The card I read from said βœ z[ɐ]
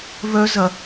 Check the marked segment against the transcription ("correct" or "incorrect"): correct